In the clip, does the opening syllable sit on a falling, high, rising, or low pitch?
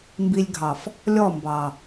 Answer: high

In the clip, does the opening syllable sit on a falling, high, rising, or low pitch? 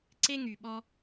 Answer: high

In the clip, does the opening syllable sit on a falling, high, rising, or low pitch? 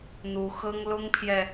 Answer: rising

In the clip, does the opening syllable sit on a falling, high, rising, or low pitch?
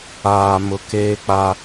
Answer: low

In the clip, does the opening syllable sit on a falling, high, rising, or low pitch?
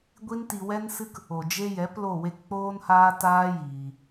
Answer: high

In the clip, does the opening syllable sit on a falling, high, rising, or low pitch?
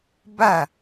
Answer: falling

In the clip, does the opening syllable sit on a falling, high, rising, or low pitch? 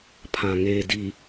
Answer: low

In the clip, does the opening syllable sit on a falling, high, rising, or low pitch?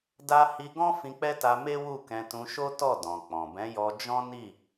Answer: high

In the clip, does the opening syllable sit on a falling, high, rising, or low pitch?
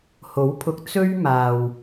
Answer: rising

